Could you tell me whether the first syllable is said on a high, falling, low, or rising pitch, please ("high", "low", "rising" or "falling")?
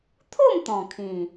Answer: falling